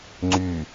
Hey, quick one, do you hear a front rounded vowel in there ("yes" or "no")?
yes